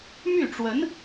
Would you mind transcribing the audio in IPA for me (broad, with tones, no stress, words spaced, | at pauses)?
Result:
my˥˩ʈ͡ʂwə˧˥n